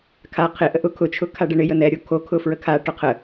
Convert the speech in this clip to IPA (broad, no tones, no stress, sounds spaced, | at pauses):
kʰ a qʰ ɪ ʔ ə ʔ ʊ kʰ ʊ t͡ʃʰ ʊ kʰ a ɖ ə ɳ ɪ j ə n ɛ ɾʲ o kʰ o kʰ ʊ f ɹ ə kʰ a ʈ ʊ qʰ ə